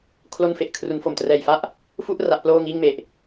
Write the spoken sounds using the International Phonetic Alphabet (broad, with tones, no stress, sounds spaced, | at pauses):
kʰ l o˥˩ n f e˨˩ ʔ kʰ r u˩˦ n f o˨˩ m t r ɛː˨˩ j f a˦˥ ʔ | f u˥˩ ʔ r a˦˥ ʔ p l oː˥˩ ŋ iː˥˩ ŋ m e˨˩ ʔ